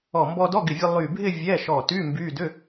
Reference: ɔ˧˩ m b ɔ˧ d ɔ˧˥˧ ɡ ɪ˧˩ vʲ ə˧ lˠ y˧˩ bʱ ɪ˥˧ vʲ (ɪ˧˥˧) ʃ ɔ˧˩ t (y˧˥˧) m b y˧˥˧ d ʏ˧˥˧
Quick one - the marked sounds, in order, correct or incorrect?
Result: incorrect: ɛ˧˥˧, correct

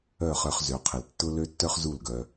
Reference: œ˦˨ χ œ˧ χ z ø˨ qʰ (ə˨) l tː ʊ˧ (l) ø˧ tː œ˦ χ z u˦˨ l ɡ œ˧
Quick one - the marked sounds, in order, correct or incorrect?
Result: correct, correct

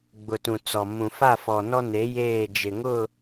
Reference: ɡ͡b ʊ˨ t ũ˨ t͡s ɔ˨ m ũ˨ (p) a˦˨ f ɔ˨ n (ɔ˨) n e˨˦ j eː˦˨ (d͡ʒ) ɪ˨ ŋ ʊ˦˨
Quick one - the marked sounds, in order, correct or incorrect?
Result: incorrect: f, incorrect: ɔ˦, correct

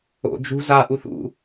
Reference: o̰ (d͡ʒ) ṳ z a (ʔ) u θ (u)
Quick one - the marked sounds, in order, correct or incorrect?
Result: correct, correct, incorrect: ṵ

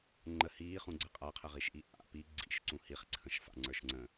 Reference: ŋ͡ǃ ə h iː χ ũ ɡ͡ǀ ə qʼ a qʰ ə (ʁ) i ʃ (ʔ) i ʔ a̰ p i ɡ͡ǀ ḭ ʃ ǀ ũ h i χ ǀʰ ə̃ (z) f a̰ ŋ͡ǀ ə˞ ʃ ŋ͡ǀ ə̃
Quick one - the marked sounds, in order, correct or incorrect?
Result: correct, correct, incorrect: ʃ

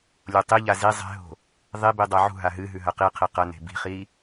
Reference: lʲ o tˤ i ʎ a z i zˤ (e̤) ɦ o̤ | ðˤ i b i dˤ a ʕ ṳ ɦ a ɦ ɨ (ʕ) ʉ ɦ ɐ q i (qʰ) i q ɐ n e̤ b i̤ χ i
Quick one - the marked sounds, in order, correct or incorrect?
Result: correct, incorrect: ɦ, correct

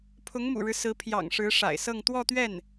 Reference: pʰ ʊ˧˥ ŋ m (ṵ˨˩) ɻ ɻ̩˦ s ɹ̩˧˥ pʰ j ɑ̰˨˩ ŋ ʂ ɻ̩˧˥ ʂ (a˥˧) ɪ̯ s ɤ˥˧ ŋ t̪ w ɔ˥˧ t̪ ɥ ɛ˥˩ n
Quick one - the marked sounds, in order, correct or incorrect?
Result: correct, incorrect: a̰˨˩

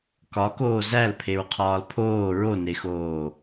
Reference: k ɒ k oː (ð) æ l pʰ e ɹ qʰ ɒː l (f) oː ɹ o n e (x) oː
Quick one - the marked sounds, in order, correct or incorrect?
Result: incorrect: z, incorrect: pʰ, correct

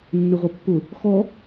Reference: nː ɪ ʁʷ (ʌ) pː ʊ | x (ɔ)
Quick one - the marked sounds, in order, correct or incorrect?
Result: correct, correct

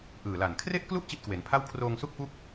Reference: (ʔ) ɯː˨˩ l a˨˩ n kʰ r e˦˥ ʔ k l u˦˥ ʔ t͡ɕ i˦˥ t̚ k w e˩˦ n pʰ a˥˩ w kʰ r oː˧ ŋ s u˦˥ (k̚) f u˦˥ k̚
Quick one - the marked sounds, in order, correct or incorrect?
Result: correct, correct

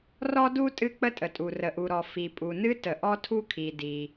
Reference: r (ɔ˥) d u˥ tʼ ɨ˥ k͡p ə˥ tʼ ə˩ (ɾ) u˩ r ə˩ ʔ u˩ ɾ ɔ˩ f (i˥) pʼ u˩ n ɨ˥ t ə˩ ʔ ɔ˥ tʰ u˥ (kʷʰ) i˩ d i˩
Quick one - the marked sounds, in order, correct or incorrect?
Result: correct, incorrect: tʼ, incorrect: i˩, incorrect: kʰ

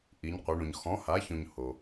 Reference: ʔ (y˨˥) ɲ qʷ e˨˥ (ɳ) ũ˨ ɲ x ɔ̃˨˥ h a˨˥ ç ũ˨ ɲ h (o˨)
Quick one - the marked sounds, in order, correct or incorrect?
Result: incorrect: i˨˥, correct, correct

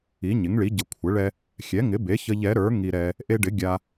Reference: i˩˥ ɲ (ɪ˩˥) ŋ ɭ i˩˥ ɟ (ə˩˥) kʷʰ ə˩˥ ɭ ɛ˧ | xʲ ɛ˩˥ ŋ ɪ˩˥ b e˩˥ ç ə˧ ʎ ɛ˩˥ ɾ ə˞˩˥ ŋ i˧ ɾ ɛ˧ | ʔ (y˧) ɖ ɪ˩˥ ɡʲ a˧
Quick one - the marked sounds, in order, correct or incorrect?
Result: correct, correct, incorrect: e˧

